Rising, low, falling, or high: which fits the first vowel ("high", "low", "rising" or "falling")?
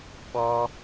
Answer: high